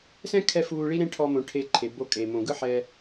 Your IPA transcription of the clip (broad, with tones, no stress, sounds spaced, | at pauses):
s ɛ̃˦ kʰ ɛ˧ f uː˧ ɭ i˦ ɾ ẽ˦ ʈʰ ɔ˧ m õ˨ ʈʰ e˧ ǃʰ e˨ b o˦˨ kʼ eː˨ m õ˨ ɡ ɯ˦ ħ ɛ˧